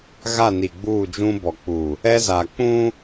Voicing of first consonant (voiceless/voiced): voiced